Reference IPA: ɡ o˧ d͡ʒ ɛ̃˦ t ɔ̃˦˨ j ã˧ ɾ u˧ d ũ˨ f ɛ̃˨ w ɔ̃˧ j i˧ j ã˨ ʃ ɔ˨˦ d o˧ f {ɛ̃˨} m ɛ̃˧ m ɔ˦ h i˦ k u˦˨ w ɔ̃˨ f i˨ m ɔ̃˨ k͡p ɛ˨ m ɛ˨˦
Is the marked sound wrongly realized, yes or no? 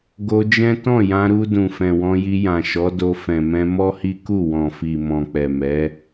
no